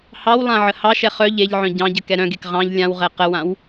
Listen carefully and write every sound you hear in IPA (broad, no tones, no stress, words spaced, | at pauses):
hɑwlˠã ʕəhɑʃɛ χœ ʎeʎʕœ̃ ɟɑ̃ɟə kɛɾœ̃ɡek ʁɑ̃ʎ lʲãwʁɛ qəwãw